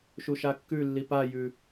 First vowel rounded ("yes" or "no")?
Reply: yes